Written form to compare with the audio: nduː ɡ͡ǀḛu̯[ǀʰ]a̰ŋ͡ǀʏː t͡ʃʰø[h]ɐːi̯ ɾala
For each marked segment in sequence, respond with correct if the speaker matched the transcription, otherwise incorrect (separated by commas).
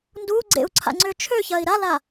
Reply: correct, incorrect